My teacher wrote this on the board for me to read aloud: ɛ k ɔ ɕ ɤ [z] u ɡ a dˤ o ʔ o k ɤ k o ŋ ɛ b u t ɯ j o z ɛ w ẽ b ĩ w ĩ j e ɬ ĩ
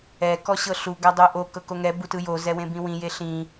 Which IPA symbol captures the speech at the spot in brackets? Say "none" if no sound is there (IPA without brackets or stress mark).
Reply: ɬ